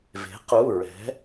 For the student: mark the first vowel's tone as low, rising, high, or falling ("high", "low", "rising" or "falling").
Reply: rising